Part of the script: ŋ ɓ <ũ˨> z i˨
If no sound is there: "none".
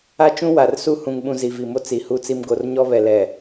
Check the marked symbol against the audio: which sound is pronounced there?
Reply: ũ˨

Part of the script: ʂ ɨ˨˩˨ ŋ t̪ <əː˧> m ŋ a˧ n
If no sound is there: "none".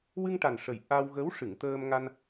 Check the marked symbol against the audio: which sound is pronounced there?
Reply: əː˧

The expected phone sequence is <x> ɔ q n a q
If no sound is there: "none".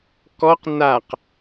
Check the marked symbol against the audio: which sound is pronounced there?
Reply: k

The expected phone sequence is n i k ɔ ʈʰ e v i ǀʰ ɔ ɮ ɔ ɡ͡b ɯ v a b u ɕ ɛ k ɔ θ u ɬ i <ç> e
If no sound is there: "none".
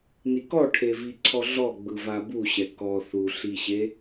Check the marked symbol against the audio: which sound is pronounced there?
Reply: ɕ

